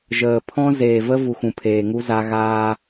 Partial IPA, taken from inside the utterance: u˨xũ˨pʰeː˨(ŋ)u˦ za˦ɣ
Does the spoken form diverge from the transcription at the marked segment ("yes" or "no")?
no